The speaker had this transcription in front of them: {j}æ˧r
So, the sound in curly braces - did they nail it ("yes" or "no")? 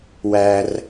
no